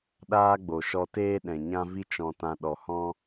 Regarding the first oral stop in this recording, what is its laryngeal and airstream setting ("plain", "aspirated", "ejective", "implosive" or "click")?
implosive